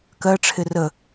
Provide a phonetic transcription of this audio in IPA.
k ɜ ʈ͡ʂʰ ɪ r ə

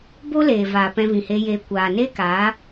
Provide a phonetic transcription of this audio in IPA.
b o˦ l eː˨ v aː˨ p ɛ̃˧ v ĩ˨ h e˧ j eː˧ kʷ aː˨ n e˦ k aː˨˦

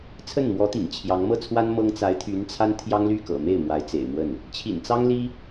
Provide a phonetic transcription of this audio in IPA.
t͡sʰ ə˥˩ n m w ɔ˧˥ t̪ ḭ˨˩ ŋ t͡ɕʰ j ɑ˧˥ ŋ m ɤ˥˩ t͡sʰ w a˥ n m ɤ˥ ŋ t͡s a˧˥ ɪ̯ t̪ʰ y˧˥ n t͡sʰ a˥ n t̪ʰ j ɑ˥ ŋ l y˥˩ k ɤ̰˨˩ m e˥˩ ɪ̯ m w a˧˥ ɪ̯ t͡s ḛ˨˩ ɪ̯ m w ə˥˩ n | t͡ɕʰ ḭ˨˩ n t͡s ɑ˥ ŋ l i˥

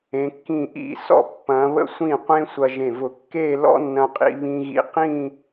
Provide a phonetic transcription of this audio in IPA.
ẽ˩˧ kː ĩ˧˩ ʔ ḭ˧˩ s ɔ̰˧˩ pː ɐ̃˩˧ β ə̰˧ sʷ ĩ˧˩ qʷ ẽ˧ sʷ ɐ˧ ʒ ẽ˧˩ v ʊ˧˩ kː e˥˧ l ɔ̰˥ nː ɐ̃˧ qʼ ḭ˧ β ĩ˧ ɣ ḭ˧ q ĩ˥˧

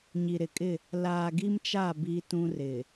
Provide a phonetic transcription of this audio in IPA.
ɲ i˨ ɾ ɪ˨ kʼ ɪ˦˨ | l aː˨ ɡ i˦ m t͡ʃ a˦˨ b i˦ t ũ˦ r ɪ˨

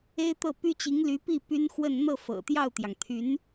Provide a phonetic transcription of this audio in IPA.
e˥ ɪ̯ t̪ ɤ˥˩ p y˥ t͡ɕ i˧˥ ŋ l y˧˥ p i˥˩ p y˥ n x w ə˥˧ n n̪ ɤ˥˩ f ɤ̰˨˩ t̪ j ɑ˥˩ ʊ̯ t̪ j ɑ˩ ŋ t̪ʰ y˧˥ n

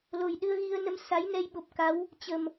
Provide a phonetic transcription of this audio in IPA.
l o˨˩ j ɗ ɨ˧ ə̯ ɣ i˧ ə̯ n ə˧ m s a˨˦ j n ɛ˧ j ɓ o˨˩ p̚ k a˨˦ w | t͡ɕ ə˨˩ m

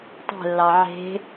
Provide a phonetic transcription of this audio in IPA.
tˤ ɛ̤ lː ɑ ʕ e̤

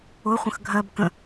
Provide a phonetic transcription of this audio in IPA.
ʊ χʷ ə̃ x ɡʱ ɜ b k ə̃

